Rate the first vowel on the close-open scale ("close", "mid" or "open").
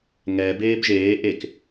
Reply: mid